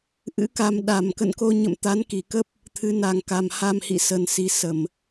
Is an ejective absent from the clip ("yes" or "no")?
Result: yes